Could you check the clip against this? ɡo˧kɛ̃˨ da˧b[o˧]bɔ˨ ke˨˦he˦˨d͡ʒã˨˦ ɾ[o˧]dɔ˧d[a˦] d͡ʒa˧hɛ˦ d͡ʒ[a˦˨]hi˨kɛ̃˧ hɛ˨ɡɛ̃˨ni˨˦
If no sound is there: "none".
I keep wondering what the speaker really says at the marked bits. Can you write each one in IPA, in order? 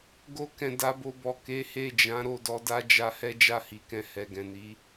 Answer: o˧, o˦˨, a˦, a˦˨

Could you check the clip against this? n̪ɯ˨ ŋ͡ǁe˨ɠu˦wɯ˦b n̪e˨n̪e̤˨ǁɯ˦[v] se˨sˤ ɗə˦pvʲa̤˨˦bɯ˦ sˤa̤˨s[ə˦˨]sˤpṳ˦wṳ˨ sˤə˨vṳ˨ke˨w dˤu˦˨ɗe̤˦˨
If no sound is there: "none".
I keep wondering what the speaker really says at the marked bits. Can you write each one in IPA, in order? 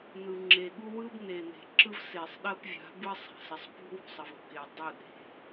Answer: v, ə˨

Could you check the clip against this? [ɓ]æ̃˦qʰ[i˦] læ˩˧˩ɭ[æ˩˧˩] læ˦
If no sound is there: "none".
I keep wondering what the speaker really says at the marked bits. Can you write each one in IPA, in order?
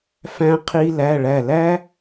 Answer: f, i˦, æ˧˩

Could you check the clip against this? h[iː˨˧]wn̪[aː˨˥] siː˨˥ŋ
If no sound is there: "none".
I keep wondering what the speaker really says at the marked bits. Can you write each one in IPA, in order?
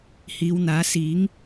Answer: iː˨˧, aː˨˥

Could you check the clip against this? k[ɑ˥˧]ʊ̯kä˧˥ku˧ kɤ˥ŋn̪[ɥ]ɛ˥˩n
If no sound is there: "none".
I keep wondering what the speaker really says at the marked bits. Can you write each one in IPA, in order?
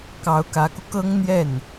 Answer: ɑ˧˥, j

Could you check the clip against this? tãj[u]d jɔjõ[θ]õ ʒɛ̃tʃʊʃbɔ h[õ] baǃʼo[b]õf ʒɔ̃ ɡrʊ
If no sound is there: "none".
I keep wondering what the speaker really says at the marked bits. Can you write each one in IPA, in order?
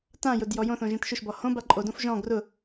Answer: ʊ, θ, õ, d

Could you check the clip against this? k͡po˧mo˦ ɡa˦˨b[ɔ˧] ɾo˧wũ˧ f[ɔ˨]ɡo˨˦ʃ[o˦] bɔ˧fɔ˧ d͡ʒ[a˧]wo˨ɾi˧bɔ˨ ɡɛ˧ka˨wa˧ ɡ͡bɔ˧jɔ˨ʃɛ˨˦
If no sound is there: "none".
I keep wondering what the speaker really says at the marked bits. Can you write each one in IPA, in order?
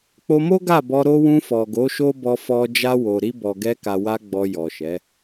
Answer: ɔ˧, ɔ˨, o˦, a˧

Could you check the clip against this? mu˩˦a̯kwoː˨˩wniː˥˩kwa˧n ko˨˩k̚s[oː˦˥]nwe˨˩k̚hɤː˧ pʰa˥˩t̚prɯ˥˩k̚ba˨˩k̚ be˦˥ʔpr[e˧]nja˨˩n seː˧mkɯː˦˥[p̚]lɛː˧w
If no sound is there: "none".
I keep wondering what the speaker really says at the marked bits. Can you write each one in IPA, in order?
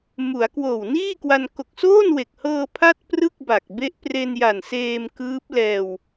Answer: oː˥˩, e˧, p̚

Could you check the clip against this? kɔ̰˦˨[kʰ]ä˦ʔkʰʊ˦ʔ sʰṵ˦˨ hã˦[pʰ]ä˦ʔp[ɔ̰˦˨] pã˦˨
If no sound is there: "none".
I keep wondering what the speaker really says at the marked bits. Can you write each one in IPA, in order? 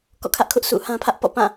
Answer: kʰ, pʰ, ɔ̰˦˨

